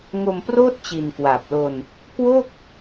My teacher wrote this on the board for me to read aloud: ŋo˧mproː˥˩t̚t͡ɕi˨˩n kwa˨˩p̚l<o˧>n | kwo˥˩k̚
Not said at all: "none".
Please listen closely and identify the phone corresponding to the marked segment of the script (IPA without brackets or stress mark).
o˧